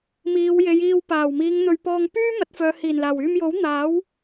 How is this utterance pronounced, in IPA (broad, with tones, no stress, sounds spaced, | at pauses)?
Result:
m iː˨˧ w j e˨˧ j iː˧ w p aː˨˩ w m iː˨˧ ŋ n̪ ɵ˧ ɥ p ɔː˧ ŋ p yː˥ m ɐ˨˥ t̚ f œː˨˧ h iː˨˩ n l aː˨˩ w yː˧ m j o˨˥ w n̪ aː˨˥ w